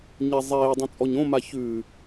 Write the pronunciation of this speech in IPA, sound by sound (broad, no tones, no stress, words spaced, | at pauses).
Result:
ɲe zˤeː dˤũt͡sʼɔɲõma çʉ